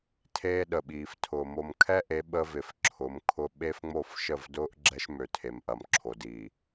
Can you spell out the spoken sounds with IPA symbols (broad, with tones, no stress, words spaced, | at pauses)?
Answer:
tʰeː˦ɗə˨ɓiː˨f tʰʊː˨ mo˨mkʰɛ˦ʔe˨˦ ɓə˦vɪ˨fǁʰʊ˨˦mkʰʊ˦ ɓe˦fŋ͡mo˦˨f ʃə˦˨vdʊː˦ʔ ɡ͡ǁɛ˦ʃmø˨tʰe˨mʔɐ˨m ǁʰo˨diː˨